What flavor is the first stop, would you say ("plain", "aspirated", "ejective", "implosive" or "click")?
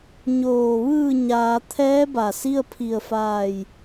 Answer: aspirated